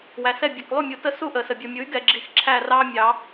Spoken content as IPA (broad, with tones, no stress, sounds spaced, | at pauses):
w æ˨ s ɛ˥˩ bʲ ɛ˨ k lˠ u˥˩ mʲ u˨˩˦ t ə˦ s u˥˩ ʔ ə˨˩˦ s ə˨ bʲ u˨ mʲ u˩˥ y̯ ɡ ɛ˨ ɡ͡ǁ i˨ x ǁʰ æ˥˩ r ɑ˦ mʲ ɑ˨˩˦